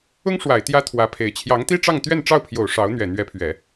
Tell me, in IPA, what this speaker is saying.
ʊ˥ ŋ ʂ w a˨˩ ɪ̯ t̪ j ä˥ t̪ʰ w ä˧˥ pʰ e˨˩ ɪ̯ t͡ɕʰ j ɑ˧˥ ŋ t̪ i˥ ʈ͡ʂ ɑ˥˧ ŋ t̪ ɥ ɛ˥˧ n ʈ͡ʂ ɑ˥˩ ʊ̯ pʰ j o˨˩ ʊ̯ ʂ ɑ˧˥ ʊ̯ n̪ ɥ ɛ˨˩ n̪ ɥ ɛ˧˥ pʰ ɥ ɛ˨˩˦

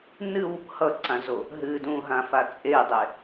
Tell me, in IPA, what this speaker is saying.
n ɨ w | h ʌ ǀ ã z o | ɦ ɨ d ũ ɦ ã f a t͡sʼ e dˤ e

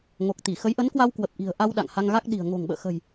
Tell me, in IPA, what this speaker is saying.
ŋ o˨˩ k̚ t̪ i˧˩ x ə˨˦ j ʔ ə˨˦ n k w a˧ w k w ə˨˩ p̚ ʔ i̤˨˩ ə̯ ʔ a˧ w ɗ a̰˧˨ ŋ h a˧ ŋ ɣ a˦˥ k̚ ɗ i̤˨˩ ə̯ ŋ o̤˨˩ ŋ ɓ ə̰ː˧˨ x ə̤˨˩ j

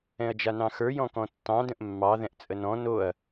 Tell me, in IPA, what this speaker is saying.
ɛ̃ ɐ̯ d͡ʒ a n ɑ̃ x ə˞ j ɔ̃ k ɔ̃ tː ɑ̃ d ə̃ ʔ mː ɑ ð ɛ̃ ʔ t͡sʼ ə n ɔ̃ n o ɐ̯

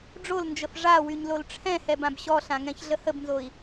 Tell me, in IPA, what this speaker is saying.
ɖ͡ʐ o l n d͡ʒ ə f ʐ a w y ɲ l o l ʈ͡ʂʰ ɛ̃ h ɛ b ã b ɕ ɔ ɬ ã ŋ ɛ̃ ç ɮ ə h ə b n z o i̯

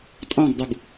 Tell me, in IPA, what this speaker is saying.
tʼ ɑ̃ ɡ dˤ u ɡ

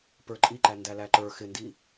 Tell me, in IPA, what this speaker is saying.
p ə˞ ǃʼ i ǃ æ n d æ l æ ǃ ə˞ x ɪ n d i

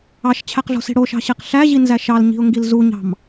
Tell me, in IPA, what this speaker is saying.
ɑ ʃ t͡ɕʰ æ q ɮ o̤ s i̤ ɽ o ʃ ɑ̤ ɕ e q ɬ æ ʑ i n z æ ʃ ɑ l ɲ i̤ ʊ̯ ŋ ɡ i l z u ɲ ɑ̤ m

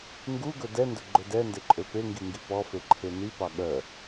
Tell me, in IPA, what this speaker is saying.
ŋ ɡ u ɡ ɵ d ɛ n d ɵ ɡ͡ǃ ɵ d ɛ n d e ǃʼ ø p e ŋ ɡ i ŋ ɡ i p ɔ f e ǃʰ e n i p ɑ ɠ œ

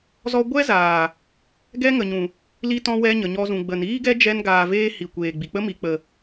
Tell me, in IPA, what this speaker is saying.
z ɔ˦ ɡʷ ɛ˦ z aː˨ | ɡ ɛ˦ ŋ ə˨ ɲ ũ˨ | l i˧ t ɔ̃˧ w ɛ˧ ɲ ə˨ ɲ ɔ˧ z ũ˨ ɡ͡b ə˨ n iː˦ ɡ ɛ˦ d͡ʒ ɛ˧ n ɡ aː˨ v eː˧ h i˨ kʷ eː˨ ɡ͡b i˨ k͡p ə˦ m i˨ k͡p ə˨

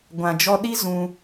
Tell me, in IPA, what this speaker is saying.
ɡʷ ã˨ d͡ʒ ɔ˧ ɗ i˦ z ũ˧

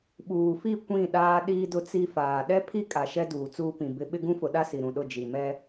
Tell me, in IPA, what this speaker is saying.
ɓ uː˨ f i˦˨ kʷ ĩ˦˨ ɗ aː˦ ɗ iː˦ d ʊ˦ t͡s i˦ f aː˨ ɗ ɛ˦ pʰ i˦ kʼ a˨ ʃ ɛ˦ d uː˨ t͡s uː˦ p ĩ˨ b ɪ˦ ɓ ɪ˦ ɡ ũ˦ f ʊ˨ ɗ a˦ s i˨ ɾ ũ˨ ɗ ʊ˦˨ d͡ʒ i˨ m ɛ˦

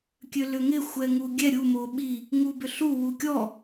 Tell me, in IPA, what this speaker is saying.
kʲ ø l ʏ ŋ ɪ xʷ ɛ ŋ u ɡʲ ɛ ɾʲ u m o ɓ i | ŋ u b ʏ ɬ u w u kʲ ɔ

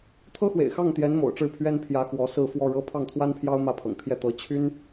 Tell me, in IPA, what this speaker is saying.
t̪ʰ ɤ˥ x w ḛ˨˩ ɪ̯ x ɑ˥˩ ŋ t̪ j ɛ˧˥ n m o̰˨˩ ʊ̯ ʈ͡ʂ ɻ̩˥˩ pʰ ɥ ɛ˥ n pʰ j ä˧˥ x w ɔ˧˥ s ɹ̩˥˧ f w ɔ˥˩ ɻ ɤ˥ pʰ ɑ˥˩ ŋ t̪ʰ w a˥ n pʰ j ɑ˥ ʊ̯ m ä˥˩ pʰ ɤ̰˨˩ ŋ t̪ʰ j ɛ˥˩ t̪ ɤ˧˥ t͡ɕʰ y˥ n

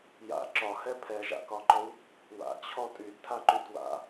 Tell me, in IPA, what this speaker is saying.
j a̰ ǁ ɒ h ɛ pʰ ɛ ʒ a̰ k ɒ ǃ ɔ w | w a̰ t͡ɕʰ ɔ tʼ y d tʰ a ǃ y d w a̰

